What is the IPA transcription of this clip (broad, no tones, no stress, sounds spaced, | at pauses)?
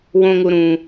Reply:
w õ ŋ u ɾ ũ